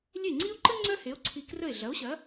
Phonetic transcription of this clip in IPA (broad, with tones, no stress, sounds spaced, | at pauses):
lʲ e˥˩ ŋ͡ǀ i˥ o̯ ǃ ə˥ ŋ͡ǀ œ˥ h e˩˥ o̯ ǀʰ i˧ k r ə˥˩ e̯ ɮ ɐ˩˥ o̯ ɕ ɐ˩˥